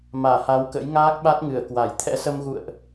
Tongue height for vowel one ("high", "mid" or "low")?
low